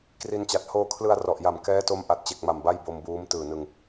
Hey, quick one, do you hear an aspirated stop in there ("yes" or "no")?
yes